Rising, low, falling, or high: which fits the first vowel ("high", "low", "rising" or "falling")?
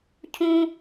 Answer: high